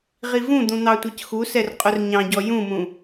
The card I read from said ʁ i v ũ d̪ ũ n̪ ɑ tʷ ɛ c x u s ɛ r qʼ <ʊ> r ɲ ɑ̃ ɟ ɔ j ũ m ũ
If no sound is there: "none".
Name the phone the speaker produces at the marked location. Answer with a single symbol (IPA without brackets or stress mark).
ʊ